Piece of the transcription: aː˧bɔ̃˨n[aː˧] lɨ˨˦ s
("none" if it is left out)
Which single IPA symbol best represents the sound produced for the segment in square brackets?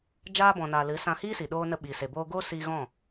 aː˨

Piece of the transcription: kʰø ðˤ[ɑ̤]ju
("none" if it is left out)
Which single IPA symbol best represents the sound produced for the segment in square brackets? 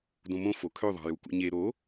ɑ̤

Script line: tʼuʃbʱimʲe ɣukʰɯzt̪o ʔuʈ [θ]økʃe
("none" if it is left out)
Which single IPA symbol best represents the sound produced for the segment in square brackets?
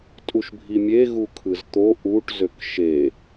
z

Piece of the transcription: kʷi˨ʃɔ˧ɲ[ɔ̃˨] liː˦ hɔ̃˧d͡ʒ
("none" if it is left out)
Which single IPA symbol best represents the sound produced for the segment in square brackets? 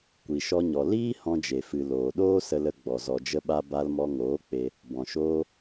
ɔ˨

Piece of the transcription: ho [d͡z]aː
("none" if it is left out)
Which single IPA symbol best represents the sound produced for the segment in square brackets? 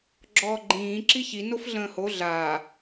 ɮ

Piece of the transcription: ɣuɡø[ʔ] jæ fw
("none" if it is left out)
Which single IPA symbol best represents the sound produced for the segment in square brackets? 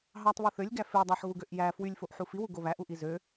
ʔ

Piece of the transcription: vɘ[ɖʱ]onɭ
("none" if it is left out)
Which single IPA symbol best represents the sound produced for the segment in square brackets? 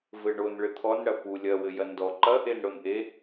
ɳ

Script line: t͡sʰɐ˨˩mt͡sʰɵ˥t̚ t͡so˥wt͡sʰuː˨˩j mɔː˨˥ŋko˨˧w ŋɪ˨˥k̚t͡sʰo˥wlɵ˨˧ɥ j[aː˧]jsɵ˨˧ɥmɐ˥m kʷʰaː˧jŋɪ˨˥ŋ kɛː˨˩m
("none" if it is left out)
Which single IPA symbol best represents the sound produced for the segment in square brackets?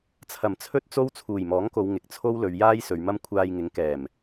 aː˥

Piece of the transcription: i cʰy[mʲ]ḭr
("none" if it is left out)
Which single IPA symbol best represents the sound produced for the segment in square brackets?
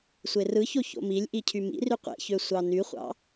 m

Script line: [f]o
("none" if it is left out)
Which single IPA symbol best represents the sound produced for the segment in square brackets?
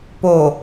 p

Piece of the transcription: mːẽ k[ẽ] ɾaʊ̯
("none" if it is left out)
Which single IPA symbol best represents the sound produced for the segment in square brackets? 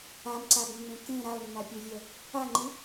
ẽ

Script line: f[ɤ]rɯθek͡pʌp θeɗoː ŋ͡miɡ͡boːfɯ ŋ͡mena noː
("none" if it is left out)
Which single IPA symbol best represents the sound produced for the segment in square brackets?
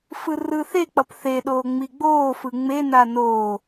ɯ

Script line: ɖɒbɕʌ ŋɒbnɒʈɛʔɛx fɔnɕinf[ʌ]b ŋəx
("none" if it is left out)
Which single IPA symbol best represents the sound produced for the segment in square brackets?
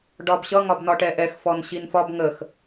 ɒ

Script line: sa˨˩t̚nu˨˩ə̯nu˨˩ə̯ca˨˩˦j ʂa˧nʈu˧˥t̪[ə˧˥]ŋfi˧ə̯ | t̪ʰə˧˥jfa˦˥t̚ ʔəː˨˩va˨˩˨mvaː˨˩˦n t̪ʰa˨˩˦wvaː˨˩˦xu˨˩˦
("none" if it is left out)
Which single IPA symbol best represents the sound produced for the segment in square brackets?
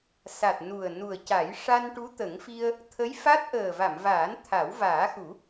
ə˨˩˦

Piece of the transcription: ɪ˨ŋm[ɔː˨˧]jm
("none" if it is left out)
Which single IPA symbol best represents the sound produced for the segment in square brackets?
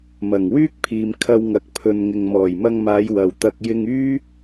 ɔː˨˩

